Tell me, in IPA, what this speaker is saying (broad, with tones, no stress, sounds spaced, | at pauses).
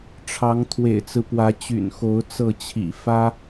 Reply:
ʈ͡ʂʰ ɑ˨˦ ŋ t̪ʰ w ḛ˨˩ ɪ̯ t͡s ɹ̩˦ p w ä˨˦ t͡ɕ y̰˨˩ n x o˨˦ ʊ̯ t͡s ɤ˥˨ t͡ɕʰ ḭ˨˩ f ä˦